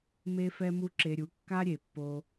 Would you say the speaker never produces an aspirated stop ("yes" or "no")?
yes